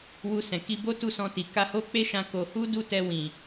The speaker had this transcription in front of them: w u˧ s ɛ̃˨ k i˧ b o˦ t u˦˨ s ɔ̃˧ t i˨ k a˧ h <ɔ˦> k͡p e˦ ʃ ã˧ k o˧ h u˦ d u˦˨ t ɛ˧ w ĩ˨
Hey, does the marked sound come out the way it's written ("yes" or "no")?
no